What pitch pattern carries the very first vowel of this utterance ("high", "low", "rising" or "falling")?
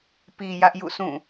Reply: low